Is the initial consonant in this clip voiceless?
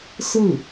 yes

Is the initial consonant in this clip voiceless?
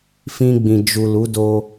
yes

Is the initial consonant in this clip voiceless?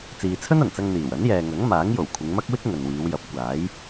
yes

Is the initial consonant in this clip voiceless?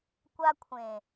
yes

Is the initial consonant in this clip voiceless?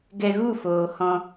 no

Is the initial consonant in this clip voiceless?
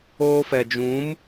yes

